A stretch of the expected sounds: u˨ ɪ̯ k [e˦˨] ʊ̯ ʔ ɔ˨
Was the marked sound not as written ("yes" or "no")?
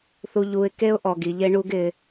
yes